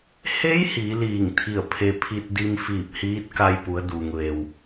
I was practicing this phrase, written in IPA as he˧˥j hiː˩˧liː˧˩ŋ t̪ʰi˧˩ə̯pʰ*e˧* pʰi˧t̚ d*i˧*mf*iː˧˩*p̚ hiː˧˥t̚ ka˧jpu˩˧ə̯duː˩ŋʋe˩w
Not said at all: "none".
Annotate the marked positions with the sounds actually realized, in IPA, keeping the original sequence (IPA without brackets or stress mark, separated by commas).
e˧, i˧, iː˧˩